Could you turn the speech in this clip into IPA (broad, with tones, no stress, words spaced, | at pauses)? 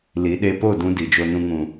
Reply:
li˨˦ ɗe˧po˦˨ dũ˦di˨d͡ʒo˧nũ˧ ŋũ˨